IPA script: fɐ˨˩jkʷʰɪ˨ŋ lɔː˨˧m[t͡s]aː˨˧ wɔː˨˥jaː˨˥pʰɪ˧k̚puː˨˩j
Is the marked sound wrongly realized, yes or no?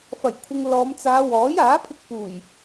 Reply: no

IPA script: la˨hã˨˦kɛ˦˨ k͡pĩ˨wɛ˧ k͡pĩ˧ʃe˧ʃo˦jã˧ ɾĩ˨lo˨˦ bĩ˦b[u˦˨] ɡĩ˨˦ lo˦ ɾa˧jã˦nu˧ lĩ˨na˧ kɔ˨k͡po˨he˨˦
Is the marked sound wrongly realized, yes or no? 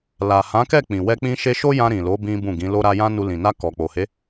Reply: yes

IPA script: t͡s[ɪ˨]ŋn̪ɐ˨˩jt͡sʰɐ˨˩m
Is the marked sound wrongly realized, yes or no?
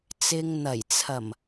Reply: no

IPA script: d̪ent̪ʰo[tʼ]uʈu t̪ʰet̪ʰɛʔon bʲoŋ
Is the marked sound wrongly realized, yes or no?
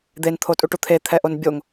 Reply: no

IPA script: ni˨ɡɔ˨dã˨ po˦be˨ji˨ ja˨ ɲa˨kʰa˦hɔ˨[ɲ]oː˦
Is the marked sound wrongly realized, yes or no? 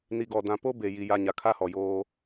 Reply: yes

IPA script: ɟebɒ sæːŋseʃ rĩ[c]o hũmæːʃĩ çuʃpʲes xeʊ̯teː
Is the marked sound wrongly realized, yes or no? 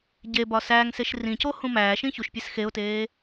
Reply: no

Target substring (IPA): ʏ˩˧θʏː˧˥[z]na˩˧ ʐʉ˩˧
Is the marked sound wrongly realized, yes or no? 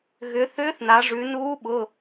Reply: yes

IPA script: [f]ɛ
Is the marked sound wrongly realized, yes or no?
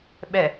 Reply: yes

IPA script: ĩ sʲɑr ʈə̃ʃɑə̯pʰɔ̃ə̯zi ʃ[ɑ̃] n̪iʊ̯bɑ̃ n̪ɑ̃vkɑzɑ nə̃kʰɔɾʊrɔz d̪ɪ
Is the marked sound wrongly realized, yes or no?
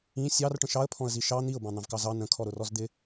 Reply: yes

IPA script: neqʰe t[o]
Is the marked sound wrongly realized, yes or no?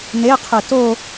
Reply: no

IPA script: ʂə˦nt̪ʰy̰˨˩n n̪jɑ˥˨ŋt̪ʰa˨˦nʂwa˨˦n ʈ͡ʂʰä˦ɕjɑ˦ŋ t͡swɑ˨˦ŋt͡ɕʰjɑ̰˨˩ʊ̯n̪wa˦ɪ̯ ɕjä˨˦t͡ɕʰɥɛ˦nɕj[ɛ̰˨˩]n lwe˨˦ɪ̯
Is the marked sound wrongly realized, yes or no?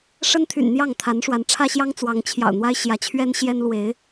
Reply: yes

